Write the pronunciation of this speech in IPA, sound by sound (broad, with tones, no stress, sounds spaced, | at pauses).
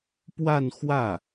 p w a˥˧ n x w ä˥˩